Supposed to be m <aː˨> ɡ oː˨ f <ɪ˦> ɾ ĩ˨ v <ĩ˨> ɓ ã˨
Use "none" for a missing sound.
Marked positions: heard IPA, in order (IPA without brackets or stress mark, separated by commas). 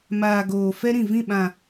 aː˨, ɛ˦, ĩ˦˨